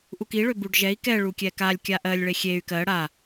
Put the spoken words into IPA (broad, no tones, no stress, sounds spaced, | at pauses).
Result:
ʔ u k i ɭ ø b u ɖ ʒ ɛ i̯ k ɛ ɭ u kʲ ɛ k a lʲ kʲ a ʔ ɜ lʲ ɭ e xʲ e y̯ k ɜ ɽ a